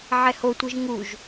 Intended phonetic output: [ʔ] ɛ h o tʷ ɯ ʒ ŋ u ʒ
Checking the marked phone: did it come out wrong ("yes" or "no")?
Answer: yes